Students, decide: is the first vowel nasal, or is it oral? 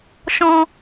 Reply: nasal